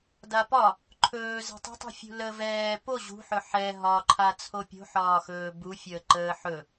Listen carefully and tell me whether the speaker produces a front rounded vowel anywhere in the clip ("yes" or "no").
no